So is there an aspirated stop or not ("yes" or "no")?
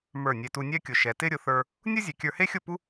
no